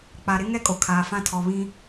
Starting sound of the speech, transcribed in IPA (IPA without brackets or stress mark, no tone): k͡p